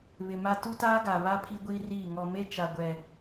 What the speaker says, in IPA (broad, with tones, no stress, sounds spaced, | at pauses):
β ɪ˨ m a˦ t u˦ t aː˦ ɡ a˨ β a˦ pʰ i˦ ɡʷ iː˦ r iː˦˨ ŋ ɔ˨ m e˦ t͡ʃ a˨ ɡʷ ɛ˨